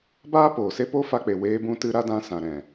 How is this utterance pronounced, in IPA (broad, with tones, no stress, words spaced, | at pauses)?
baː˦poː˨se˦ po˦fa˧k͡pe˨ weː˧bũ˧ tɨ˧ ɾa˦dã˧sã˨ ɾɛ̃˨